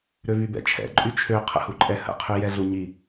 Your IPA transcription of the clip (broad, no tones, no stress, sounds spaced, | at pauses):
ɾ ø v y b ɛ̰ t͡ʃʰ ɛ̰ ǃʼ y t͡ʃʰ ø qʰ ə̰ h u ǃʼ ɛ h ə̰ qʰ y j ɛ ɮ u ɲ i